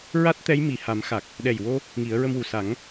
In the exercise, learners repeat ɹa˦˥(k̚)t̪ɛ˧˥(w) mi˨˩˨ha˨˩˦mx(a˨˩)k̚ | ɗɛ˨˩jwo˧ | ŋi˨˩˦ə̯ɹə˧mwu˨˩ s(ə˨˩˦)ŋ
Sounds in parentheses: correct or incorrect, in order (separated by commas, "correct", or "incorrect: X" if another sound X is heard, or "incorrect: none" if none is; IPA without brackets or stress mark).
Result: incorrect: t̚, incorrect: j, correct, incorrect: a˨˩˦